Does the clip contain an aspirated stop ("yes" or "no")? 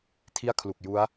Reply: yes